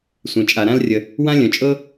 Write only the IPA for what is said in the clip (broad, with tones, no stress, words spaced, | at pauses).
sʷẽ˩t͡ʃʼa˩ɾã˥lrʲə˩ | wã˥lʲœ̃˩t͡ʃʼɤ˥